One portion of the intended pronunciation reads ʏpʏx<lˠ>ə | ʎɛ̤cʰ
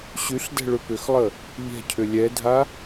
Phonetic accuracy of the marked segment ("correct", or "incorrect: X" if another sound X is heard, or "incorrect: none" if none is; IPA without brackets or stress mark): correct